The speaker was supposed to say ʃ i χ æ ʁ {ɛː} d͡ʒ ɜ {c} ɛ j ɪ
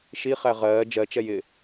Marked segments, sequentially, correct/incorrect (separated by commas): incorrect, incorrect